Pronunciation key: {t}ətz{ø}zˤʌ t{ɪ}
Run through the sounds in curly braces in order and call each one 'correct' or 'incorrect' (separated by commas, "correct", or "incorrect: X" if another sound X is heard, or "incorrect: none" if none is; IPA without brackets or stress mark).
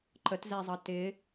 incorrect: ǃ, incorrect: ɛ, correct